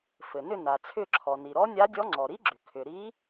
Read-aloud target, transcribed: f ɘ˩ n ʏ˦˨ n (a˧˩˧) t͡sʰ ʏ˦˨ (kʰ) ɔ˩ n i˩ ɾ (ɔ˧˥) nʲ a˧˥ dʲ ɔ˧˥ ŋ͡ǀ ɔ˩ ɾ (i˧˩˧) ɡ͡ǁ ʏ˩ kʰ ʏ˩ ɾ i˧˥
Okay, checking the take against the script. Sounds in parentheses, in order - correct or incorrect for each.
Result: incorrect, incorrect, correct, incorrect

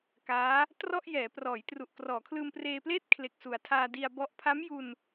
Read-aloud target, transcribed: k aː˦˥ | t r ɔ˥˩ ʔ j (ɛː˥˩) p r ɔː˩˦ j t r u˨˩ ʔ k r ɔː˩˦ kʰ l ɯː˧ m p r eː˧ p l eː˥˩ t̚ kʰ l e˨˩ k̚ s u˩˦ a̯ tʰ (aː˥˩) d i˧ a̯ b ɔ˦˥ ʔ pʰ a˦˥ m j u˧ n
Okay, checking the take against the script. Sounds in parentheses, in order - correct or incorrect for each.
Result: incorrect, incorrect

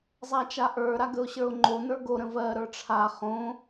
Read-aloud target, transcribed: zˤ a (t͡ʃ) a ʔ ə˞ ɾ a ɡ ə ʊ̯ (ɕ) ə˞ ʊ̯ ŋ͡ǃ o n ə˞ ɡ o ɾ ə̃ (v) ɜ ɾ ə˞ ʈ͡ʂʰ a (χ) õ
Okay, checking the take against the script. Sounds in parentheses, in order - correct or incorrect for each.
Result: correct, correct, correct, correct

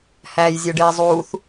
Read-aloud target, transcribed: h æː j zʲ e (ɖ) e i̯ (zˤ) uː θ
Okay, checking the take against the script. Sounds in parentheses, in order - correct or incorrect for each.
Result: correct, correct

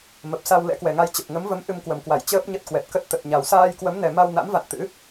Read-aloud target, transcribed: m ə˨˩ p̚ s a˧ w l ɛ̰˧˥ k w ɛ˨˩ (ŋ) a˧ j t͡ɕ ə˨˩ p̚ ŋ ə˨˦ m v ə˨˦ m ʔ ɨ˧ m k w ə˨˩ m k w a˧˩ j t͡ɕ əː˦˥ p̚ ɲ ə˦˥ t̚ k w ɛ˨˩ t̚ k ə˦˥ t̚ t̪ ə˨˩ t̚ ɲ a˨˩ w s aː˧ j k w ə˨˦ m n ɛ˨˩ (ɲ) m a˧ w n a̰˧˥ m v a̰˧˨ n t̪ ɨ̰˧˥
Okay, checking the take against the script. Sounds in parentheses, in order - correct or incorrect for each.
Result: correct, incorrect

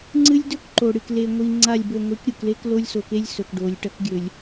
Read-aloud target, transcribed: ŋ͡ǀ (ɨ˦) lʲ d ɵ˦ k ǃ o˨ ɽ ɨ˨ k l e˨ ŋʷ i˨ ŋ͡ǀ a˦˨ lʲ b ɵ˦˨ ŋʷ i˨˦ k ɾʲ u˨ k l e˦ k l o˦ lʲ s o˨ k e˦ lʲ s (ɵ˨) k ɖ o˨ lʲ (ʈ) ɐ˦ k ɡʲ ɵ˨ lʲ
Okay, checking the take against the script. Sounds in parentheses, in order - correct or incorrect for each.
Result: correct, correct, correct

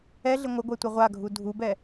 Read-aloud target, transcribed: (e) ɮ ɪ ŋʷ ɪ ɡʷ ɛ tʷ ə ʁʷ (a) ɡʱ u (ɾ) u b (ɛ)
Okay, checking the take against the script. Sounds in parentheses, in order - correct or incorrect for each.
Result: incorrect, correct, incorrect, correct

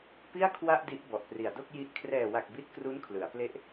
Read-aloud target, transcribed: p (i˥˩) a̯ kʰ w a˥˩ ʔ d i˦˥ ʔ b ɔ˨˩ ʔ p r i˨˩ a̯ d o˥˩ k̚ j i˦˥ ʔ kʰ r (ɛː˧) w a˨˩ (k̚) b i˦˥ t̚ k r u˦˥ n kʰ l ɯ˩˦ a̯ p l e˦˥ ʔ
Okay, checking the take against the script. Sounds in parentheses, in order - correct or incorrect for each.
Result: correct, incorrect, correct

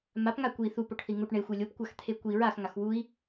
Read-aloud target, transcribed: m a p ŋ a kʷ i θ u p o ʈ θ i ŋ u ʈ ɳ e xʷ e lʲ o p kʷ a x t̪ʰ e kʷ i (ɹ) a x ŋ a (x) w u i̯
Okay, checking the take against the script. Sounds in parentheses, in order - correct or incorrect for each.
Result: correct, correct

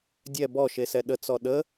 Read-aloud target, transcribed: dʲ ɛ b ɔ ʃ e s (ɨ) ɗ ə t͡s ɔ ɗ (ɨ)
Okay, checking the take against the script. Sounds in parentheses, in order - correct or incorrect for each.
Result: incorrect, incorrect

